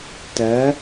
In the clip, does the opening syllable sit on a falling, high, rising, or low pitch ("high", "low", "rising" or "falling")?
rising